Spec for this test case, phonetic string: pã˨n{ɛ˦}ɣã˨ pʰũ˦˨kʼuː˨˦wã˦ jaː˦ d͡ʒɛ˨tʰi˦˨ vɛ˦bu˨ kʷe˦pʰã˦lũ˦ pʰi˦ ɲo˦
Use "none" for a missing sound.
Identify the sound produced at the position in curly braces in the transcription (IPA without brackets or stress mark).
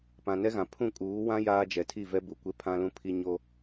ɛ˦